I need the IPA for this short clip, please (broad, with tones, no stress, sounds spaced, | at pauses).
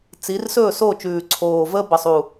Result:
t͡s i˨˦ r s ɵː˥˨ s oː˥˨ t͡ʃ ʉː˨˩ ǀʰ oː˨˩ v əː˦ b ə˨˩ sˤ u˨˩